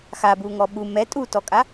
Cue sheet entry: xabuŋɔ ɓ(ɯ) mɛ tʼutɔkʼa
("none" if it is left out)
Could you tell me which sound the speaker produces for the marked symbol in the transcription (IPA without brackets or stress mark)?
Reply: u